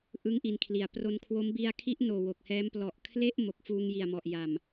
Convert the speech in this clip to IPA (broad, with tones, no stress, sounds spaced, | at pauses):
ʔ ɯ˦˥ ŋ ʔ i˧ n kʰ l i˨˩ a̯ p r o˧ n kʰ w o˦˥ m b i˧ a̯ kʰ i˦˥ ʔ n oː˨˩ w o˨˩ k̚ h ɛː˦˥ m p l ɔ˨˩ ʔ kʰ l e˥˩ ʔ m o˨˩ k̚ f uː˧ ŋ j i˨˩ a̯ m ɔ˨˩ ʔ j a˨˩ m